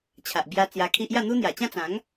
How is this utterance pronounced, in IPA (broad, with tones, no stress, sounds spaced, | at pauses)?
t͡ɕʰ a˨ ʔ b j a˧ t͡s j a˧ kʰ i˦ ʔ j a˥˧ n̪ u˦ n̪ j a˨˩ t͡ɕ ã˥˧ t͡s ã˨˦ ŋ